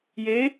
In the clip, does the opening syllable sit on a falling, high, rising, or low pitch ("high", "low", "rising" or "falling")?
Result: rising